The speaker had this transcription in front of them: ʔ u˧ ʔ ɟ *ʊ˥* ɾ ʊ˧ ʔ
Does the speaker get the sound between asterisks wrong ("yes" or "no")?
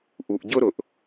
no